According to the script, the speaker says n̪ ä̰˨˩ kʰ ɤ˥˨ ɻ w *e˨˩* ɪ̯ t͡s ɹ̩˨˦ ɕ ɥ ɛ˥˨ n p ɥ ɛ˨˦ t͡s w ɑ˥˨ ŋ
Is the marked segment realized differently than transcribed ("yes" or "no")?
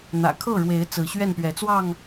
yes